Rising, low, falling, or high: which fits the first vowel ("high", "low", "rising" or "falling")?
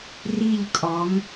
falling